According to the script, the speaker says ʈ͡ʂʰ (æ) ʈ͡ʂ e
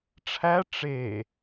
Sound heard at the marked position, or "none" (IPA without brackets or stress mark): æ